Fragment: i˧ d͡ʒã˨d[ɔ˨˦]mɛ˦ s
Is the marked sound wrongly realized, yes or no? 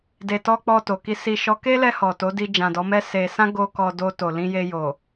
no